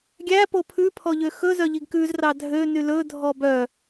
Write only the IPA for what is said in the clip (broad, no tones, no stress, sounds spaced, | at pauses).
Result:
ɡʲ æ p o pʰ ʉ pʰ ɔ ʎ ø x ɵ z œ ʎ i ɡ k ʉ z r ɑ dʱ ø n y l ɵ dʱ ɔ b œ